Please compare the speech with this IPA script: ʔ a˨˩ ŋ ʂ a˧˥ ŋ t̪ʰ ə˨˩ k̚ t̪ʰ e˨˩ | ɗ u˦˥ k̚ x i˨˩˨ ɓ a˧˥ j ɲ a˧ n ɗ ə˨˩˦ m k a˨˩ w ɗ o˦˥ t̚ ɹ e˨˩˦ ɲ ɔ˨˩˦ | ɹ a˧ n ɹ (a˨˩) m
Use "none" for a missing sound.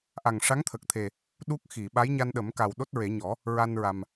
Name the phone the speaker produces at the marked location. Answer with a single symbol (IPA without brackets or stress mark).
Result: a˨˩